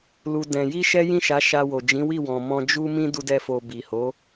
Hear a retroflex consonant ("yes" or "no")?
no